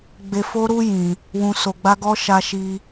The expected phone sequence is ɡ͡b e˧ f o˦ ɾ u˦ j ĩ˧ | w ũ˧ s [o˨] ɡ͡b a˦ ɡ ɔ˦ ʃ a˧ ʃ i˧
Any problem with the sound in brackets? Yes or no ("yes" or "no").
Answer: yes